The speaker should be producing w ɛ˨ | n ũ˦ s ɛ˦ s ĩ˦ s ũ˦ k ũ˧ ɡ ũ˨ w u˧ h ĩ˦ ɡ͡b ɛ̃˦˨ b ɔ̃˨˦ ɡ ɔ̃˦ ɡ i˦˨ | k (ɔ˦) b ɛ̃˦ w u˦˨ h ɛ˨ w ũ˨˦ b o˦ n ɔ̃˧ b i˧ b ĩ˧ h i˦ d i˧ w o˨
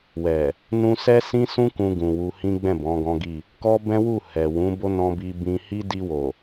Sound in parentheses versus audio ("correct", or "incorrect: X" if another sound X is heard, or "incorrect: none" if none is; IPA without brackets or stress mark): correct